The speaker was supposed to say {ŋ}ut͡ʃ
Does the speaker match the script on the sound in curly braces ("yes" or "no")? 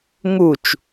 yes